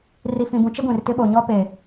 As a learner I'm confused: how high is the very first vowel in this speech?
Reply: high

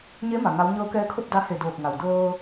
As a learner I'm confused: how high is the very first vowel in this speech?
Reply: mid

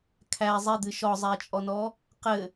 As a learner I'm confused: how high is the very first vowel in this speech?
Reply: low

